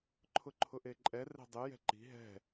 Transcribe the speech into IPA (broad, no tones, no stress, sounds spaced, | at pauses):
ǃʰ ʊ ǃʰ ʊ ʔ e ǃʼ ɛ r ɛ̤ dˤ e j ɛ̤ ǃ i̤ ɦ ɛ̤